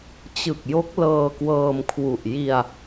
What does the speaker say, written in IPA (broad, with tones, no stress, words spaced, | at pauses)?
t͡ɕɯ˨˩k̚jo˦˥k̚ lɤː˧kwɤː˧mkʰwu˨˩ʔ ji˧a̯